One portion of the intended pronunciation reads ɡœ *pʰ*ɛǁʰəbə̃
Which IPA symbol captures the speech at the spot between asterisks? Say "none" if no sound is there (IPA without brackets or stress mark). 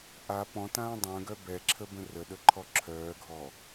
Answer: b